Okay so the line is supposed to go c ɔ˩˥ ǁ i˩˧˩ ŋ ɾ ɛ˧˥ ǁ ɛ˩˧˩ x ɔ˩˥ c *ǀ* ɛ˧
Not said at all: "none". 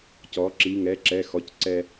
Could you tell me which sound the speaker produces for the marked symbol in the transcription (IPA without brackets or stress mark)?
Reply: ǀ